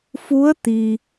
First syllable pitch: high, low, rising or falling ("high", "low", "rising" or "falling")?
rising